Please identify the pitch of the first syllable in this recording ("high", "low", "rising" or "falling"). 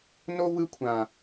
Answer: high